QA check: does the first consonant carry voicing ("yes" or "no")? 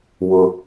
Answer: yes